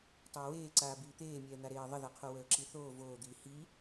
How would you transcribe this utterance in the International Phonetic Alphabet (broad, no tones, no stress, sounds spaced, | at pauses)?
tˤ əː w eː ǀ aː b iː t̪ eː mʲ ɛː n̪ a ɾ eː ðˤ ə ð a qʰ o w əː ǁ i θ oː v oː d̪ iː h i